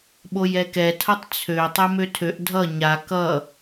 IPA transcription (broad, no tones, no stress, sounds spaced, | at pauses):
ɓ o j ɛ k ɛ tʰ ʌ tˤ t͡sʰ ø tˤ e m ø tʰ ø ʔ dʱ ʌ ɲ a k ʌ